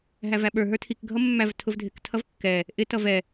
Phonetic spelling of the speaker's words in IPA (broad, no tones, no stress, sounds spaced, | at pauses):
ɦ æ v æ ɓ ə˞ ɦ ə˞ tʰ i k ɡʱ ʌ mː æ v tʰ ʊ v dʱ ɪ k tʰ ʌ v kː ɛ | ʔ ɪ t ʌ v ɛ